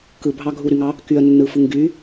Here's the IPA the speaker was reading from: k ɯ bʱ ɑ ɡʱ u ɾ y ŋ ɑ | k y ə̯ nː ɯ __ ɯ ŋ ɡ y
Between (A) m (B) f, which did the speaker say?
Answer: B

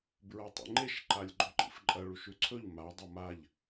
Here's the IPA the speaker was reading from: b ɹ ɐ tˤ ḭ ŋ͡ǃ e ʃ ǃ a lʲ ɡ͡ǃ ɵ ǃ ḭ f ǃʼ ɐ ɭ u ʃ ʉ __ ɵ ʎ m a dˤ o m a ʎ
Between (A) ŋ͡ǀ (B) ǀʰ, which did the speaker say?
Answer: B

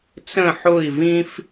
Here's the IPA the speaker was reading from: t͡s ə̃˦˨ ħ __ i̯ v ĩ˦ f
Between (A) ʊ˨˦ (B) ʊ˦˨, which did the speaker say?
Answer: B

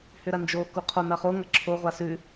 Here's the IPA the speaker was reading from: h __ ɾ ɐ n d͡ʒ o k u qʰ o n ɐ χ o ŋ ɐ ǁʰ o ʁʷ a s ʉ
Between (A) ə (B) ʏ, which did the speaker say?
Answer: B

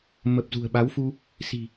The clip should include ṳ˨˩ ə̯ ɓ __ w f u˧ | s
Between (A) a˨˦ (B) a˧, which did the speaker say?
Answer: A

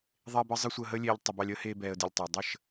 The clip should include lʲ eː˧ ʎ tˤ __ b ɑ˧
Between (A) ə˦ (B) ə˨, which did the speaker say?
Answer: B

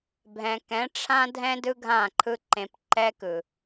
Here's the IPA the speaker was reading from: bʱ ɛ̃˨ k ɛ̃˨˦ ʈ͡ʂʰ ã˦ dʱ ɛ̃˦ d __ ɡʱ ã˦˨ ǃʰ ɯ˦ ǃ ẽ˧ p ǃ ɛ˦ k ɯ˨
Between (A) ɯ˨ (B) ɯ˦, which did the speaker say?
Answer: B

